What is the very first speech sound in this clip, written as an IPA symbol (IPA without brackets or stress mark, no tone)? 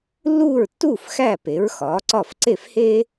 lː